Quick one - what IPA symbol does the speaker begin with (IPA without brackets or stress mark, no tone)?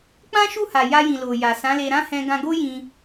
k͡p